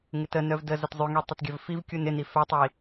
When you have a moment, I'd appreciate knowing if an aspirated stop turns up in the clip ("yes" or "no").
no